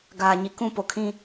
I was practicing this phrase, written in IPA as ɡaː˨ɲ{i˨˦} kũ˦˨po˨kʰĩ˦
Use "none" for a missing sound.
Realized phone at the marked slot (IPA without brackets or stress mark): i˨